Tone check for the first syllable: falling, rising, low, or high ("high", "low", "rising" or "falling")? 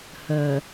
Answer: low